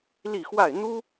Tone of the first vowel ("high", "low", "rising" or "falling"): falling